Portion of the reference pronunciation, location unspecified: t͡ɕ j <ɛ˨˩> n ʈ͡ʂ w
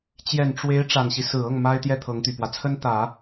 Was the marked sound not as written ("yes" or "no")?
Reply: no